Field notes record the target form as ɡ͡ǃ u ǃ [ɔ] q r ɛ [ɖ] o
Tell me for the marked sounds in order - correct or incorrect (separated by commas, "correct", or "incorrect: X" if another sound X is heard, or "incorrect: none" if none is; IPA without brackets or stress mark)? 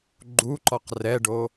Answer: correct, correct